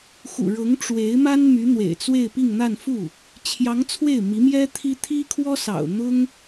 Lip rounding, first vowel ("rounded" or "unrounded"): rounded